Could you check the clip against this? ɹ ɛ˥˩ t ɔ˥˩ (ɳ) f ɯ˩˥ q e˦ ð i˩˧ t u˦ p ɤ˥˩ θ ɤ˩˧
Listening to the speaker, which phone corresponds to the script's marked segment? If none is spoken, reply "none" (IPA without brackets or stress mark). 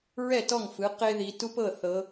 ŋ